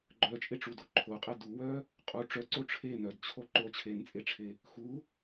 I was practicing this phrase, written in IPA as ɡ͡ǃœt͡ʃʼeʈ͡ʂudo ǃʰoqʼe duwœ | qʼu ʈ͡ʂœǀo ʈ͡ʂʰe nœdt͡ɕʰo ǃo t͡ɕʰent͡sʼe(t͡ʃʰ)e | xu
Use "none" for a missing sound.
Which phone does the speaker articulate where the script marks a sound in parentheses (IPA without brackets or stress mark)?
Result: ʈ͡ʂʰ